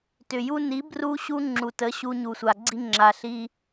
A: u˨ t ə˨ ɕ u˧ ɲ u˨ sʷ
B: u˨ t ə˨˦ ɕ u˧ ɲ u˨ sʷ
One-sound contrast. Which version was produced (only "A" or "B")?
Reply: B